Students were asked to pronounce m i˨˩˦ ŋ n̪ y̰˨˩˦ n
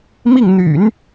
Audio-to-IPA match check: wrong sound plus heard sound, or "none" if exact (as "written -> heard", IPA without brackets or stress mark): i˨˩˦ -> i˥˩